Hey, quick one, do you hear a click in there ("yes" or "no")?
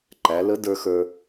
yes